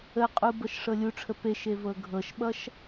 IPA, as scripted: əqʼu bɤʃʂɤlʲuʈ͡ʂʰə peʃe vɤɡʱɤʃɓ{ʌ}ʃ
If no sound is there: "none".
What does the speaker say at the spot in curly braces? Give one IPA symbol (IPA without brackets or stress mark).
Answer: ʌ